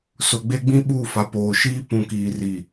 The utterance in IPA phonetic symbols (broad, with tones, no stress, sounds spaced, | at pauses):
s ʊ˨ ɡ͡b e˦ ɡ͡b ĩ˦ ɓ uː˦˨ f a˨˦ p oː˨ ʃ iː˦ p ũ˨ k iː˨ r iː˨